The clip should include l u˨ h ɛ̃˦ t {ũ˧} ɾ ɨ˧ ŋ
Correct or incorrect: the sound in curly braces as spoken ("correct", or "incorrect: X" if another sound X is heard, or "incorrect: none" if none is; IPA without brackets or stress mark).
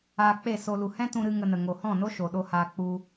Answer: correct